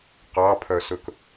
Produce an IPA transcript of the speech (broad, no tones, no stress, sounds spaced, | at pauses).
q ɑ pʰ œ s ɵ k